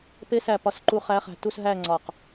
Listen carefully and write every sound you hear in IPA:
p e˧˥ s æ˧˩ p ɒ˧˩ s ǃ u˧˩ χ æ˧˥ χ æ̤˧˩ t u˥˧ s ɦ æ˥˧ ŋ͡ǀ ɒ˧˩ q

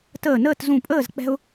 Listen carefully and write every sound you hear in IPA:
t əː˧˩ n əː˥˨ t z ũ˧˩ pʼ əː˥˨ z k͡p ɛ̤˥ ʊ̯

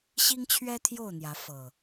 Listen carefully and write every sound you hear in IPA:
ɕ i˦ ŋ t͡ɕʰ ɥ ɛ˦ t̪ʰ j o˥˨ ʊ̯ n̪ j ä˨˦ f ɤ˨˩

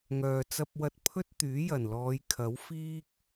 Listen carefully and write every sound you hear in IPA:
ŋ œː˨ t͡s ɐ˧ p̚ w ɐ˧ t̚ pʰ ɵ˥ t̚ t̪ yː˨˥ j ɐ˨˩ n l ɔː˨˧ j kʰ ɐ˨˥ w f iː˥ k̚

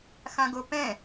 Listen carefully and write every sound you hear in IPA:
x ã ɡ o p ɛ̃

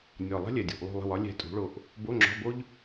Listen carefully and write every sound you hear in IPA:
nʲ ɔ˨˩ lˠ ɛ̤˥ lʲ ɛ˨˩ dʲ ṳ˨˩ ʔ lˠ ṳ˦˨ lˠ ə̤˦˨ w ɒ˨˥ lʲ ɛ̤˦˨ tʼ ṳ˨˥ ɭ o˦˨ ʔ | b o˧˥˧ ŋ͡ǁ ɔ̤˧˥˧ b o˥ ʎ

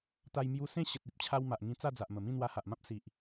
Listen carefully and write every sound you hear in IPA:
t̪ a˧ j m j u˧ s ẽ˥˧ ɕ ə˨ t̚ i˦ p̚ t͡ɕʰ a˧ w m a˨ ʔ ŋ ĩ˧ t͡s a˥˧ d͡z a˨ ʔ m ə˨˩ m ĩ˥˧ n̪ w a˧ h a˨ ʔ m ã˦ p̚ s i˨ ʔ

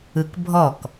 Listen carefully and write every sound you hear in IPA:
ɯ k bʱ ɔ k

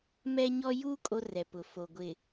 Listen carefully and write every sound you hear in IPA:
m ɛ˦ ɲ ɔ˦ j u˦ kʼ o˦ r ɛ˨ p ʊ˨ f o˨ ɡʷ ɪ˨

